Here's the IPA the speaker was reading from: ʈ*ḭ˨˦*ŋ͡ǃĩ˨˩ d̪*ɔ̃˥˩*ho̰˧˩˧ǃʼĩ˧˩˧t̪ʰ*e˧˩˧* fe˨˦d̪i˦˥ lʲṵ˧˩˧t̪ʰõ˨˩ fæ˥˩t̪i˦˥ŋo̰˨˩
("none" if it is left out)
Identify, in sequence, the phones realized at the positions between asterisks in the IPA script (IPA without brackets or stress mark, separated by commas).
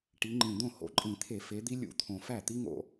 i˨˦, õ˥˩, e˧˩˧